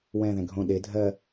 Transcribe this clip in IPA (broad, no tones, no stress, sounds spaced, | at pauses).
w ɛ̃ ð ɛ̃ ɡʱ õ ɗ e dʱ ɜ